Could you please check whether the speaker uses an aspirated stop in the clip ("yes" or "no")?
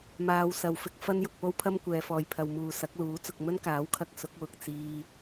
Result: yes